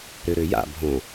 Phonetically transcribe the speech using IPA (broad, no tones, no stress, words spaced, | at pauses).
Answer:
ɾøɾøja̰ bʱõ